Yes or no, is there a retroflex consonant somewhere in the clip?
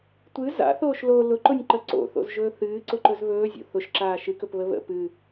no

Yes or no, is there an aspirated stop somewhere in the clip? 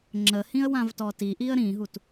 no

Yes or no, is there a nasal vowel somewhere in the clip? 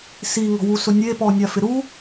no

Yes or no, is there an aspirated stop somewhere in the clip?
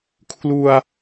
yes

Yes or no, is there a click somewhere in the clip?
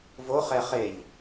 no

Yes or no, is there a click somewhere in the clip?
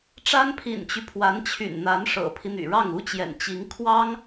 no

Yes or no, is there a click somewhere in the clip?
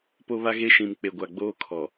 no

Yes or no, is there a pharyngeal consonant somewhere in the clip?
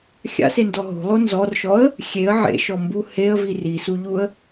yes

